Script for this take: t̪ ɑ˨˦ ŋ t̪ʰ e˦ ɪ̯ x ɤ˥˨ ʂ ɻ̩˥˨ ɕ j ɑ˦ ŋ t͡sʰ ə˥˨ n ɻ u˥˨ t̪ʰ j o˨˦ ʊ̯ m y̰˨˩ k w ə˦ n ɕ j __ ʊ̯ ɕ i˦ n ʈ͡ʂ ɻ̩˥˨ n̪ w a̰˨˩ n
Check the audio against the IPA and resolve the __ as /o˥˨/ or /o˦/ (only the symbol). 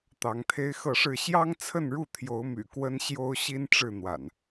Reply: o˦